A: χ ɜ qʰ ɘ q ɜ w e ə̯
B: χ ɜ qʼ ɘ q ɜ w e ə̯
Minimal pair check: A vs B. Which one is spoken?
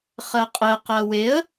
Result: B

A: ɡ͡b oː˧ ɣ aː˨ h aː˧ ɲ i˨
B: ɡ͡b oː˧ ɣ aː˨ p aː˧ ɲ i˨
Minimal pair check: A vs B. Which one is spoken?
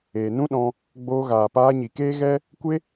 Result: B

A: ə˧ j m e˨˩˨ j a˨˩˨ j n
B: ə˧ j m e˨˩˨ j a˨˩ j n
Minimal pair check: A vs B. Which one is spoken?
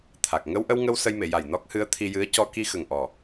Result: B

